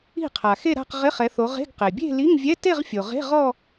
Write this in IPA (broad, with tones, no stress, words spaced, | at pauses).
i̤˥˩qʰa˩xe˥˧ɾa̤˥˧q ʁɪ˧˥˧χɛ˨˦θo˨˦ ʁe̤˧˥˧ɡ qe˩bʲe̤˥˧ li˧˥˧ŋvʲɛ˧˥˧ te˥˧ʁfʲo˩ʁe̤˧˥˧ ʁɔ˥˧